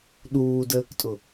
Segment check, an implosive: present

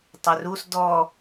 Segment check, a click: absent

